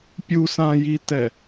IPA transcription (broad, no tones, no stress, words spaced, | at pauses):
pʲusãjitɛ